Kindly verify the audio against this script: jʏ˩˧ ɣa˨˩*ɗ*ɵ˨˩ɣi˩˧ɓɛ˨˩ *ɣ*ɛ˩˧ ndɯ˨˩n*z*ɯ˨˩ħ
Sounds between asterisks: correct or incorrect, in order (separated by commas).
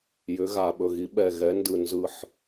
incorrect, correct, correct